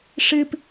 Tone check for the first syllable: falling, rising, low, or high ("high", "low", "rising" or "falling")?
high